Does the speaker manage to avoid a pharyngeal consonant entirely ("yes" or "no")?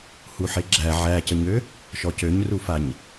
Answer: no